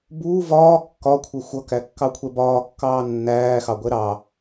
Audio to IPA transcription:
b uː v ɒː kː ɒ kʷʰ ɪ xʷ ʌ k æ kː ɑ kʷʰ ɛ b ɒː kː ɑː nː æː x ɑ ɡʷ ɛ ɾ ɑ

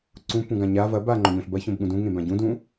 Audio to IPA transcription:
ǀ ũ p ũ ɡ ã ɲ a v ɐ b a ŋ͡ǃ o ɲ õ ɬ b ɐ ç õ b ɠ ũ d ũ ŋ ẽ b ã ɟ ũ d ũ

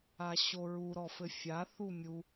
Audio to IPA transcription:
a ɕ o ɹ u ɾ ɔ f ɘ fʲ a θ u mʲ u

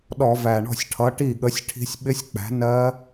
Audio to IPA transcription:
ɗ ɔ˧˩˧ v æ˨˩ ɳ ɔ̤˥˩ sʲ ʈʰ ʌ˨˥ ʈ i˥˩ ɠ ə˨˥ sʲ ʈʰ i̤˦˥ sʲ ɓ ɪ˦˥ sʲ k͡p æ̤˨˥ n ɜ˦˥

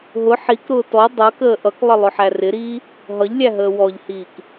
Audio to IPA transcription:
ɦ ʊ ħ i k ɾ ʊː t ɔ dˤ ʌ k əː ʔ ʌ k lˠ ə lˠ ʊ ħ æ r ɪ ɾ iː | ɦ ʌ ʎ lʲ æ ɦ əː w ɔ ʎ h iː k

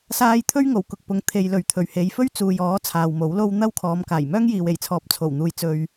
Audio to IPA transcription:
s aː˥ j t̪ʰ ɵ˥ ɥ ŋ o˨˩ w k ʊ˨ k̚ p ʊ˨ ŋ t̪ʰ e˨ j l ɵ˨ ɥ t̪ʰ ɵ˨˩ ɥ h e˨˧ j f ɵ˥ ɥ t͡s uː˨ j ɔː˨˥ t͡sʰ aː˨ w m o˨˥ w l o˧ w n̪ ɐ˥ w kʰ ɔː˨˧ m k aː˨˩ j m œː˥ ŋ j iː˨ w e˨˩ j t͡sʰ ɔː˨ p̚ t͡sʰ o˨˩ w n̪ uː˨ j t͡s ɵ˨ ɥ

